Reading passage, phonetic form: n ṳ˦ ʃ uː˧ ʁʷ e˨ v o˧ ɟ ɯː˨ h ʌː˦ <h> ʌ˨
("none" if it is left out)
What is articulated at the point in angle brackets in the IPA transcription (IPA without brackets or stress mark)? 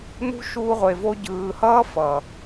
f